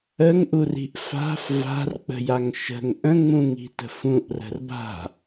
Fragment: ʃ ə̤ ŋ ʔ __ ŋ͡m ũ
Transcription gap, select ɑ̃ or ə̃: ə̃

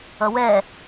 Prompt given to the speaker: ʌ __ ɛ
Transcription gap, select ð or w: w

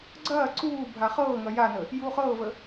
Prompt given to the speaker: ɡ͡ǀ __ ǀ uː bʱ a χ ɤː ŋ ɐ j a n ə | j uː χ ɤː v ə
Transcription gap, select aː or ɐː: ɐː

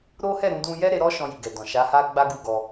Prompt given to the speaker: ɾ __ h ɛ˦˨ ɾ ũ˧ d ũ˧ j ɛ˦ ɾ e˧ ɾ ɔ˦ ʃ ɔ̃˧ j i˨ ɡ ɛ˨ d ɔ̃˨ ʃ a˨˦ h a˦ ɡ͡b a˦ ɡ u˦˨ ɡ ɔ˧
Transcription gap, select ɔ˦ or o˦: o˦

